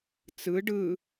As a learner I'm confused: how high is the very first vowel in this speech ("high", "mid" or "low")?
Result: high